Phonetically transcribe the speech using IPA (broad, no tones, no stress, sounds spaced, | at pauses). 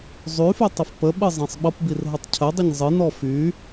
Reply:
zˤ y f y tˤ ə f p ə ɓ ɨ zˤ ĩ sˤ ɓ ʌ p b i r ɦ ə tˤ cʰ ə dˤ ə ɲ zˤ ɨ n ɔ f y